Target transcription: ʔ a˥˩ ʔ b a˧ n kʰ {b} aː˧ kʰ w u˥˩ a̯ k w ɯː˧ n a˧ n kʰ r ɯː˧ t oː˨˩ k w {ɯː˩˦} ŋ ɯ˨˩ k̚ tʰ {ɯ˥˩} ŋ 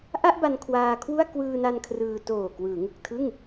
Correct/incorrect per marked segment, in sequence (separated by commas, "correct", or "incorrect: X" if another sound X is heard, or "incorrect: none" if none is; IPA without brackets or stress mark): incorrect: w, correct, correct